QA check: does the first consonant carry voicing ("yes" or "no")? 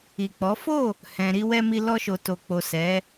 no